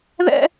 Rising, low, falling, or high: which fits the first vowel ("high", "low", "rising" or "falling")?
high